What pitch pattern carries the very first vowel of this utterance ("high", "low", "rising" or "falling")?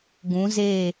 rising